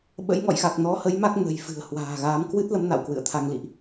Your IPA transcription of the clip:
ɓə̰˧˥jŋɔ̰˧˨jxa˨˩k̚ nɔ˨˦hə˨˦jma˦˥k̚ nə̤˨˩jfɨ̤˨˩ə̯ hwa̤ː˨˩ɣaː˨˦m kwɨ˦˥t̚lə˨˦m na̰˧˨wkwɨ̰˧˨ə̯t̪ʰa˧ŋlḭ˧˨ʔ

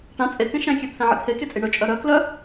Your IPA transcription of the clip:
ʈã t͡sʼekɛ̃ ʃɛ̃kʲøt̪ʰɛ̃ ʕḭt̪ʰe ket͡sʼiɳœ t͡ʃʼœɾœ klœ

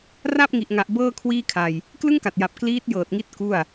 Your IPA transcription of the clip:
ra˥˩p̚ŋi˨˩ʔŋa˨˩ʔ bɤː˥˩kʰwiː˥˩kʰa˧j | klɯ˥˩ŋka˨˩t̚ja˨˩p̚ kliː˦˥t̚jɤː˨˩t̚ŋi˦˥t̚ ku˥˩a̯

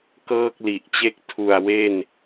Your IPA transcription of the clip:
kɤː˥˩k̚li˨˩ʔt͡ɕe˥˩k̚ tʰu˨˩a̯ we˥˩n

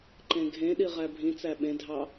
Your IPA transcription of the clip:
ǃẽɡʱẽɗi ʁæbʱĩt͡sæ ɓẽdʱɑ

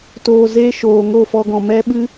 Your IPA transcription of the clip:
toː˨ze˧ ʃoː˨ ŋo˦˨fɔ˧ɡɔ̃˨ mɛ˦ɓɨ˦

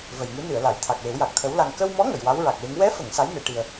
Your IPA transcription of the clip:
və˨˩jŋɨ˧˥nɨ˨˩˨ə̯la˨˩˨j t̪ʰa˨˩k̚we˨˩˦w ja˨˩k̚t̪ʰə˧˥wla˧ŋ kə˧wmɔ˧˥ ŋə˨˩˨jwa˧˥wɹa˨˩k̚we˧˥ŋ wɛ˧˥fə˨˩˨ŋ sa˧˥j ne˨˩˨ʈi˨˩ə̯

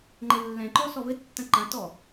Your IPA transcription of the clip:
ŋ͡ǃɘlːɛ̃ǃɔ sɔβɘtːɐ̃ ǃɐ̃tɔ

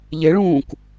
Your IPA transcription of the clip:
ʎeɭũːk

